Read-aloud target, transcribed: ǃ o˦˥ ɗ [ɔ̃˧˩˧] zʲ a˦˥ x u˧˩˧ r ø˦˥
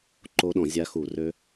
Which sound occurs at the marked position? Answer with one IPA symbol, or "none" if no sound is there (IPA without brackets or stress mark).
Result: ɔ̃˧˩˧